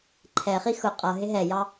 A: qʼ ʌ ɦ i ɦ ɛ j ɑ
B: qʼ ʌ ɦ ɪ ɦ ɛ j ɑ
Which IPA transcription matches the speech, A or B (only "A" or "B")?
B